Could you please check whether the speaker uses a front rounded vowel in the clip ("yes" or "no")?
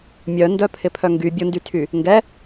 yes